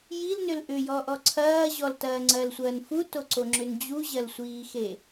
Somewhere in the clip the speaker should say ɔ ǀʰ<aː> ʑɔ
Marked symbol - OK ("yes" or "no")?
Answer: no